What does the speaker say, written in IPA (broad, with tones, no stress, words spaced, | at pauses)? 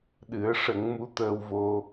ɗɨ˨˩˦ə̯ ʂə˨˩˦ŋmu˧˥ t̪əː˧wvo˧